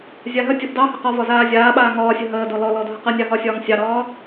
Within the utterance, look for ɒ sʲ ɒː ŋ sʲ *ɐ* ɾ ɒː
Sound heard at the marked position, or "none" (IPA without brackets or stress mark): ɑ